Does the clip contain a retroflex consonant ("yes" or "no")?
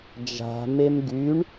yes